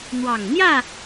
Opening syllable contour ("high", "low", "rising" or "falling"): low